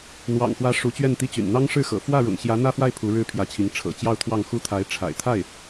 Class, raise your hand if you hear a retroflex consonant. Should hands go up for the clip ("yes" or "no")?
yes